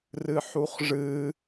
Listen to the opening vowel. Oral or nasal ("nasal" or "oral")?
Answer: oral